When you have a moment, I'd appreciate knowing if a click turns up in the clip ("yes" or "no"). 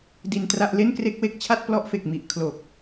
no